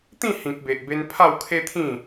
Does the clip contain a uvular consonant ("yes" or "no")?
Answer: no